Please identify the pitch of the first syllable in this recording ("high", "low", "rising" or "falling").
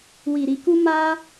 low